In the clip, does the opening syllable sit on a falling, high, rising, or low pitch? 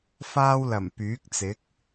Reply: high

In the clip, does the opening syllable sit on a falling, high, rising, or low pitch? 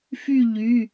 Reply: falling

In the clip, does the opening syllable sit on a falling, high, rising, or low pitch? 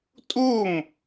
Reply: falling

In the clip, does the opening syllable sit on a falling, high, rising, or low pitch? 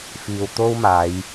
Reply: low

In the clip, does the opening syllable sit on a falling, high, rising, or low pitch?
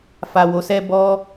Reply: low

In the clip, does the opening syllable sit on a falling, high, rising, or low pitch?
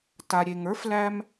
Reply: low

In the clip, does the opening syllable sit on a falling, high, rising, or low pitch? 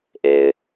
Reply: low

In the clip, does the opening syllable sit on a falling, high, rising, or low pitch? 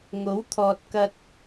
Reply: rising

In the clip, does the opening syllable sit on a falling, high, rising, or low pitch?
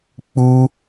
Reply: high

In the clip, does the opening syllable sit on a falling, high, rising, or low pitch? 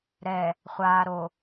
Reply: low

